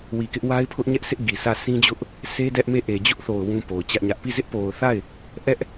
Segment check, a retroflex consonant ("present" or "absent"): absent